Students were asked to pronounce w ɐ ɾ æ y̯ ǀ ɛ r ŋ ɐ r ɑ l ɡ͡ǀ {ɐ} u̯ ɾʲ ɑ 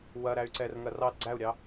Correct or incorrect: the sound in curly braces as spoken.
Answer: incorrect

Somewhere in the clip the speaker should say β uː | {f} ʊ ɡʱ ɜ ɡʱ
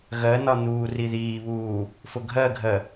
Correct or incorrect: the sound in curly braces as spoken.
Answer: correct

